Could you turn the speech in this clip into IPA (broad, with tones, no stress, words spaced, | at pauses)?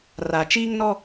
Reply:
ra˨t͡ʃiː˦ŋnɔ˦